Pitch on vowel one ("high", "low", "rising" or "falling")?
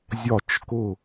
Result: falling